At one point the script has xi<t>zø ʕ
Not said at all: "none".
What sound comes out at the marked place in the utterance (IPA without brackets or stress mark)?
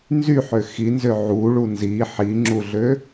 n